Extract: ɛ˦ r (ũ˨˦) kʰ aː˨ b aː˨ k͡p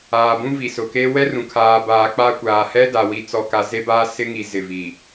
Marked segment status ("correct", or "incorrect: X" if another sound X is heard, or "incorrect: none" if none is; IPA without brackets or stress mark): incorrect: ũ˨